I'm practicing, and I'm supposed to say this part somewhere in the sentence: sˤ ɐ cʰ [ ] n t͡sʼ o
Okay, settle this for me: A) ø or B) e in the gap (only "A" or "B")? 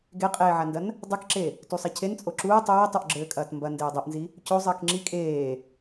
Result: B